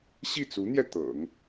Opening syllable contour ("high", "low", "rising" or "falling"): falling